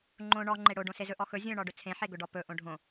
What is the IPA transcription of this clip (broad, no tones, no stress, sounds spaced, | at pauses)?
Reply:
ŋ͡ǃ õ ɳ ɔ ŋ͡ǃ e ɽ o ɖ õ s e z ɵ ʔ ɔ x ɵ zʲ õ ɳ ɔ ɖ ɵ t͡sʰ ẽ ħ e ɡ ɵ ɖ ɔ p ɵ ʔ õ ɖʱ õ